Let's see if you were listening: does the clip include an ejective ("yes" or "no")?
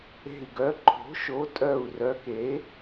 yes